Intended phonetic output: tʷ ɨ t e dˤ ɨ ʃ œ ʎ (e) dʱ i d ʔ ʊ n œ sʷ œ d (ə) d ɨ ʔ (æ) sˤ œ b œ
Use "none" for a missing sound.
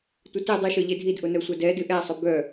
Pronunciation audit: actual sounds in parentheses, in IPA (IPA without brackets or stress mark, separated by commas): e, ɛ, ɛ